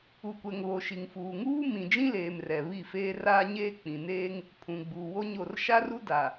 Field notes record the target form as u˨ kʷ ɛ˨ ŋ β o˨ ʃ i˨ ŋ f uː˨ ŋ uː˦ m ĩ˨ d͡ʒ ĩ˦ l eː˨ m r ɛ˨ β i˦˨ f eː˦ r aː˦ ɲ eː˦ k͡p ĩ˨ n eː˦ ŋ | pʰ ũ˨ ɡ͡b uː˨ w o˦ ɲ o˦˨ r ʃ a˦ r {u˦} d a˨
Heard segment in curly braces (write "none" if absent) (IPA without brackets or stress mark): u˦